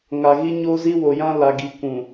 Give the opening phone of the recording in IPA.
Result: ŋ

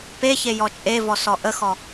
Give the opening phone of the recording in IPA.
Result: p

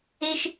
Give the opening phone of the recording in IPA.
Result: e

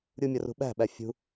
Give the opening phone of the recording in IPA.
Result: ɾʲ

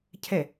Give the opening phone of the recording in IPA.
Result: cʰ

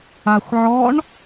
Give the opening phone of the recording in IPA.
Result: a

